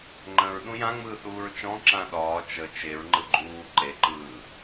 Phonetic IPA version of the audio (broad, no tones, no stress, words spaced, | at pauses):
ŋ͡ǃə̃ɹ ɗũjãŋ͡mɯː θuːɹt͡ʃɔ̃ ǁãɗɒː t͡ʃə t͡ʃeɹŋ͡ǃɯ ɡ͡ǃuː ǃeǃɯː